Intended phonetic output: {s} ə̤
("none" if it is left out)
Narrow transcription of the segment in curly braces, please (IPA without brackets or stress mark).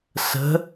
s